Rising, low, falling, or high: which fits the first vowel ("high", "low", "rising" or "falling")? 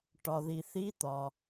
low